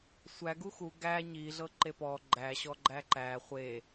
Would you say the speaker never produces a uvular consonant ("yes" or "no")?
no